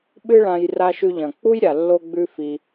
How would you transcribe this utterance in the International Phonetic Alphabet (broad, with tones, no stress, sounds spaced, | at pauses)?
ɓ ɨ˦ ɭ ã˧ j r a˧ ʃ ʉ˧ ʎ ɐ̃˨ k͡p u˦ j ɾʲ a˨ lː o˧ ɡ͡b ʉ˧ f i˧